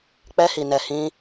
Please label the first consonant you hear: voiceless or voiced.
voiceless